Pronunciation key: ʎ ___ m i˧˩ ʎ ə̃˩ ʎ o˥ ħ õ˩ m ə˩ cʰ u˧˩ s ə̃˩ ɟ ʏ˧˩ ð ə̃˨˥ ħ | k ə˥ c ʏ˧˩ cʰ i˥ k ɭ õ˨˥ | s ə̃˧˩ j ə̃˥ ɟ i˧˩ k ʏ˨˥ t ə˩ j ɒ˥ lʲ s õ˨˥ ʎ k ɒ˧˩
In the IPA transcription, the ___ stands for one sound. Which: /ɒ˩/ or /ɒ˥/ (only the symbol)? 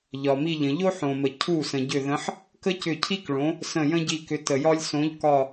ɒ˩